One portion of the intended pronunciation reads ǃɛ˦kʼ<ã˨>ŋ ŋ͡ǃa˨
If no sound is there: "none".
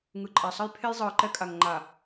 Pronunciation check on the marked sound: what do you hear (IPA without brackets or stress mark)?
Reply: a˨